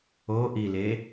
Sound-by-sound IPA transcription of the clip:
o ʔ i l e

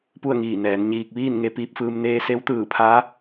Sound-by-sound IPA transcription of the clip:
p u˥˨ ə̯ ŋ iː˧˩ n ɛː˩˧ n ɲ iː˧ k̚ ʋ iː˥˨ n ŋ e˧ p iː˧ p̚ f ɯː˧ m n eː˧ s e˧˥ w t̪ ɯː˧˩ pʰ aː˧˥

